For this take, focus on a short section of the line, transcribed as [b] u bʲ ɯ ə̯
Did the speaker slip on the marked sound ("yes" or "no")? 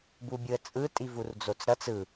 no